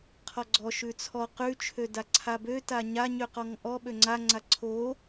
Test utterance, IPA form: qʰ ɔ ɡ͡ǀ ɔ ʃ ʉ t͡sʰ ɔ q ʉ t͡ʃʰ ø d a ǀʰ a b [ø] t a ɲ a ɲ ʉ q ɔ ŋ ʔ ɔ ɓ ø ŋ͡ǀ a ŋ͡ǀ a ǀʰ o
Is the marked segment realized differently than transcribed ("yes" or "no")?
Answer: no